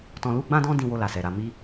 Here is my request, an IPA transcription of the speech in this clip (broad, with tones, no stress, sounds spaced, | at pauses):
t ɔ̃˧ l u˦ ɡ͡b ã˦ d ɔ̃˦ d ĩ˧ w o˧ l a˨ s ɛ˨ ɾ a˧ m i˦